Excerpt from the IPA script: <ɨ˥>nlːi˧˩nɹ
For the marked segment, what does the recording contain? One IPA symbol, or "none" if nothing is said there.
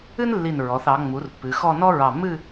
ɨ˥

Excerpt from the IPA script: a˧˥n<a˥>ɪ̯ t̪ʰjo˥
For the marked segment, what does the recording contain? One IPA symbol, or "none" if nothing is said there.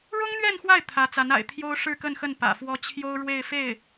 a̰˨˩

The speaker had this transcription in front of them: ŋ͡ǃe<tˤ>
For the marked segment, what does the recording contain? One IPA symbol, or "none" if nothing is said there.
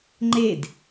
d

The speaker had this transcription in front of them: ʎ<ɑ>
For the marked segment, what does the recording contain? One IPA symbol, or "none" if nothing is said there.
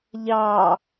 ɑ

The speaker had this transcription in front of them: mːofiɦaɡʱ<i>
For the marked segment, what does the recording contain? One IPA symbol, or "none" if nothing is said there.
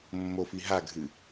ɨ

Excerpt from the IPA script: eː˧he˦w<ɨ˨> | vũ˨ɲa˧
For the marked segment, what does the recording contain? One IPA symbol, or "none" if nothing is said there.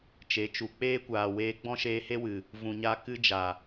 ɨ˨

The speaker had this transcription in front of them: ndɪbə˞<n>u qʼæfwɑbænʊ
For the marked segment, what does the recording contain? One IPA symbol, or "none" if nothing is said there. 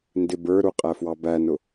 ɾ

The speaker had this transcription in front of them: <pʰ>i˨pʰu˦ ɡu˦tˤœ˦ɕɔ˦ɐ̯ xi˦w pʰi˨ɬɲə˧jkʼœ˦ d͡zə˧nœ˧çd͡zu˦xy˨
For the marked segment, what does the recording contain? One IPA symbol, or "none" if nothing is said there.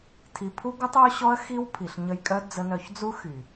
tʰ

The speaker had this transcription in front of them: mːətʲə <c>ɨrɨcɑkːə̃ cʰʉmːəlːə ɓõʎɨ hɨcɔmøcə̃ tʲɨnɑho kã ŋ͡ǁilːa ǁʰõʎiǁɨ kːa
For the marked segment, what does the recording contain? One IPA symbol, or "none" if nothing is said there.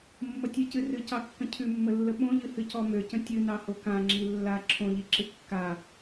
c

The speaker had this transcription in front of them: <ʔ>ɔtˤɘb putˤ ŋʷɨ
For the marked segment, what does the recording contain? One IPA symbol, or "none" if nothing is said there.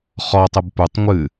χ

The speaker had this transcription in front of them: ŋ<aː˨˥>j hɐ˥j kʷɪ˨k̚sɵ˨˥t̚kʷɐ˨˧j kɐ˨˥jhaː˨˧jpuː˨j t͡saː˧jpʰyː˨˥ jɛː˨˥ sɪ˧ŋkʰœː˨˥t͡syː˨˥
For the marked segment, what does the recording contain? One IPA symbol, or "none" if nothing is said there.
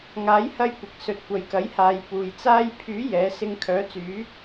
aː˨˥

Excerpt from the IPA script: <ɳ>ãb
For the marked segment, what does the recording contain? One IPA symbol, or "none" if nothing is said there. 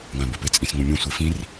ŋ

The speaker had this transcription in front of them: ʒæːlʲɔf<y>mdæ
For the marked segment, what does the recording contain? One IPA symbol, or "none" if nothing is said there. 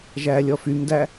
y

